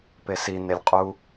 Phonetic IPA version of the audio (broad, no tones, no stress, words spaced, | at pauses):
pesi nelʲqʼu